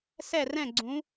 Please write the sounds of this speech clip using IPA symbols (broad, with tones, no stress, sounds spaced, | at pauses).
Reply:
s ɛ˧˩ r ɛ̃˧˩ ɡ͡ǀ ũ˩˧